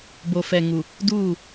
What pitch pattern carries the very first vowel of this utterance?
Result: low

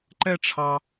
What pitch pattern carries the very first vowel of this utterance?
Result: high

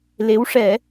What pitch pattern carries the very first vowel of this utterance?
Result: rising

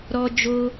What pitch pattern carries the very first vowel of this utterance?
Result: high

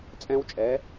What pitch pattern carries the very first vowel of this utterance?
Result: high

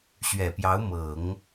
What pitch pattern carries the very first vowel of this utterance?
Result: low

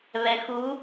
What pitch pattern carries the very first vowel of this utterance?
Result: low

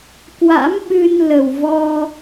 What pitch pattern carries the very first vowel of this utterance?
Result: rising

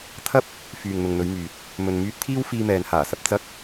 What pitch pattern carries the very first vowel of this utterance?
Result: high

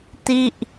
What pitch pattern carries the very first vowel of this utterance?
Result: falling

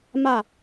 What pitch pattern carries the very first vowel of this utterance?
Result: falling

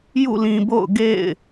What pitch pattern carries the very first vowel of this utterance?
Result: falling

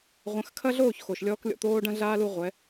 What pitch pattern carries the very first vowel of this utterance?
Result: rising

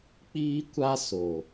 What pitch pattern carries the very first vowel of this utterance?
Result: high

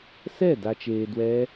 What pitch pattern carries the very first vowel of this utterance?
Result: falling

